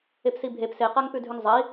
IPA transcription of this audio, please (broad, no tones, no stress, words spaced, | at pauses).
epsibʱep seqaŋpʉdʱʉŋ zˤɐi̯